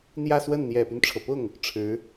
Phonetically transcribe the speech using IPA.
n̪ j ä˥˧ s w ə˥˩ n n̪ j ɛ˨˩ p y˦ n ʈ͡ʂʰ ɤ˩ p ʊ˥˩ ŋ | ʈ͡ʂʰ ɻ̩˧˥

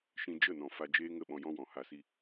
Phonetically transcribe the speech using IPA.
ʃ ĩ˧ d͡ʒ ə˦˨ n ɔ̃˨ f a˧ d͡ʒ eː˦ ŋ ə˦˨ ɓ ɔ̃˧ j ɔ̃˦ w ɔ̃˨ h a˧ s i˧

